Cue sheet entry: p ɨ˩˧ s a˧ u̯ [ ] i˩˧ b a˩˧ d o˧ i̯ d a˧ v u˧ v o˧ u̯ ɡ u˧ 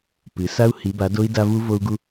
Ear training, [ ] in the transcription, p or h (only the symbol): h